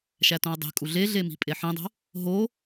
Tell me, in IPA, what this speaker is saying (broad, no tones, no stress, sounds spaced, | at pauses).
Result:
ʃ æ t õ ə̯ dˤ e̤ kʼ u ɮ e ɮ e m i̤ pʼ e ħ ĩ dˤ o̤ | ɦ o